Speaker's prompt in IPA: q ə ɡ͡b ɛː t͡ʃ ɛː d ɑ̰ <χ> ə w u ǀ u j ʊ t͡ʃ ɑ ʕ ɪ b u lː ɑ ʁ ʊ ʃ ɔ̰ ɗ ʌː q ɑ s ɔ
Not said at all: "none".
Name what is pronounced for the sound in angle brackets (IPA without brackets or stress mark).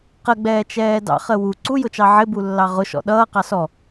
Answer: χ